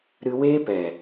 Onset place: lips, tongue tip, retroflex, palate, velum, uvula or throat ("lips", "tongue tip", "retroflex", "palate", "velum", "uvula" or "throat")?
tongue tip